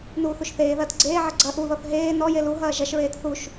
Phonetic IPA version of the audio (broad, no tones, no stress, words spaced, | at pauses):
nuːθuʃθeːðɐːt ɡ͡ǀeːʕɐ ɡ͡ǀɐ ʔuðɔθ ɦeː nɔje luɦɐː ʒɐʃɹeːt θuʃ